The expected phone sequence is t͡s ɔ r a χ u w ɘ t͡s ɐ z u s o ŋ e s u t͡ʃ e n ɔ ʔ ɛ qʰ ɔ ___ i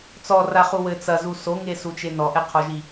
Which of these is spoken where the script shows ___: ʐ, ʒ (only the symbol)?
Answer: ʒ